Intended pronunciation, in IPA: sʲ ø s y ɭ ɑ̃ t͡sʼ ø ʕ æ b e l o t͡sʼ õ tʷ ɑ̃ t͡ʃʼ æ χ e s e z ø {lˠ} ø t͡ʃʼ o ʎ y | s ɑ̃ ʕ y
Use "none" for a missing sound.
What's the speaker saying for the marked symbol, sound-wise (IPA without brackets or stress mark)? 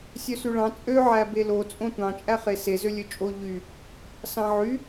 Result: lʲ